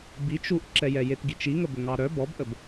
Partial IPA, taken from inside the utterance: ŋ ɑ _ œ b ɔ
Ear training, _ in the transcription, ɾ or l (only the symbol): ɾ